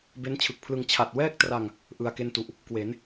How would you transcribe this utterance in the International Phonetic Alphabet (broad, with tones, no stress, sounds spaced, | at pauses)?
b e˦˥ n t͡ɕʰ ɯ˨˩ k̚ pʰ l ɯ˧ ŋ t͡ɕʰ a˨˩ t̚ w ɛː˥˩ k̚ t r a˧ ŋ | ʔ ɯ˧ a̯ k e˥˩ n t u˨˩ ʔ | k w e˩˦ n